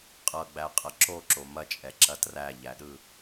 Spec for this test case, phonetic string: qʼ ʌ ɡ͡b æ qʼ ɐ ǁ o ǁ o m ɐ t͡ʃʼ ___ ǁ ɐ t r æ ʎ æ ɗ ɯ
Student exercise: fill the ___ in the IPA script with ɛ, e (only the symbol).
ɛ